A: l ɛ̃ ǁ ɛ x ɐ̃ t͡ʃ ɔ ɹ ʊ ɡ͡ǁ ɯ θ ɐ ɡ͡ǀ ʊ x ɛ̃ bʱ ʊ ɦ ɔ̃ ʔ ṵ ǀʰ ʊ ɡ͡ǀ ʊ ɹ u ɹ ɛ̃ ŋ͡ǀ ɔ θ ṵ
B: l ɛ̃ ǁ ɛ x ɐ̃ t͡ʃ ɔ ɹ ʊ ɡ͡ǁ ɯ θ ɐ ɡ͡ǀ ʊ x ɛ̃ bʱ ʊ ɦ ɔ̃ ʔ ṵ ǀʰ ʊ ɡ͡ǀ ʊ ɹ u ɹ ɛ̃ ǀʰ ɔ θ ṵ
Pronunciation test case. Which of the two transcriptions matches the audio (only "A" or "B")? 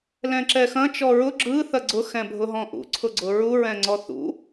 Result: A